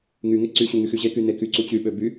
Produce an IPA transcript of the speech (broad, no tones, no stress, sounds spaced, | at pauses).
ŋ y ŋ e ǀ y ɕ u ŋ y x y ʑ e k y n e k y ǀ u t͡ɕ y ɓ ø b y